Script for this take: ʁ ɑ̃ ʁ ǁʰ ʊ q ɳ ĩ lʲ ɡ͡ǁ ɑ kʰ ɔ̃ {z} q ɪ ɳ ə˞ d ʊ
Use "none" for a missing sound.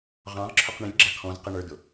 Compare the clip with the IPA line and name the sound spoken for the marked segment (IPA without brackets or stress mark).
z